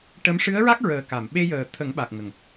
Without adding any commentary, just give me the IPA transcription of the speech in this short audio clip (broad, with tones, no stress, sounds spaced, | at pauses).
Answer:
ʈ ə˧˥ m ʂ ɨ˧˥ ə̯ ɹ a˦˥ k̚ ɹ əː˨˩ k a˨˩˨ m ɓ e˧ j əː˨˩ t̪ʰ ə˨˩˦ ŋ ɓ a˨˩ k̚ ŋ ə˨˩ ŋ